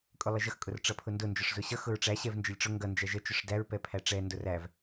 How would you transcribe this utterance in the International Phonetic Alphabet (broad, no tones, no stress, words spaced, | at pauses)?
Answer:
kʼʊlˠəʒʌx kʼʊrʈ͡ʂʌpʰʊndʊ nd͡ʒɔʂzʊɕʌ xʊɹʈ͡ʂæ ɕɛvnd͡ʒəlʲʈ͡ʂʊ ŋɡʌ nd͡ʒæʒə t͡ʃʊʂdæɹ pɛpʰæʈ͡ʂɛ ndʊræv